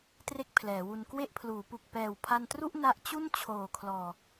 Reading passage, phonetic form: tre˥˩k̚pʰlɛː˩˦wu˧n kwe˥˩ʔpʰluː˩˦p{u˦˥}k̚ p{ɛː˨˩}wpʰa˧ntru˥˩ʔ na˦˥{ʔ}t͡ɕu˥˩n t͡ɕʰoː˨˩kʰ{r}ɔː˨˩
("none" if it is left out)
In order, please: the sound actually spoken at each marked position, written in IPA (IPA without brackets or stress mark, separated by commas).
u˨˩, ɛː˨˩, ʔ, l